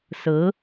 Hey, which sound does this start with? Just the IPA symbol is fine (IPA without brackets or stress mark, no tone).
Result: s